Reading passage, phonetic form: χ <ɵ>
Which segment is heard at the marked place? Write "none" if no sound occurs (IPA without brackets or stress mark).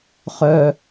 œ